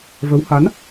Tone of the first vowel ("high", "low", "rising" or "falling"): rising